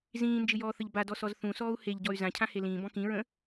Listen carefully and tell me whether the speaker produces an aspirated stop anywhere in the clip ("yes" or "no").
yes